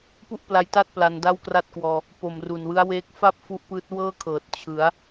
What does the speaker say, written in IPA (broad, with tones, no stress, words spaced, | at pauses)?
pu˥˩ʔpla˧jta˥˩t̚ pla˧nda˥˩wkra˥˩t̚kwɔː˧ | po˨˩mru˨˩nwɯ˦˥a̯weː˦˥k̚ fa˥˩p̚ fu˦˥ʔpɯː˦˥t̚ wɤː˥˩kʰɤː˨˩t̚ t͡ɕʰɯ˩˦a̯